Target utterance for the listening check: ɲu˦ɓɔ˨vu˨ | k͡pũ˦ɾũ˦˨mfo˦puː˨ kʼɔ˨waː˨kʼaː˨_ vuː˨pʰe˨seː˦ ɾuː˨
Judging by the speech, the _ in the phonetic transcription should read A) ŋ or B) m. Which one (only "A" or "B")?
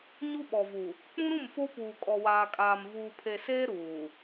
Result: B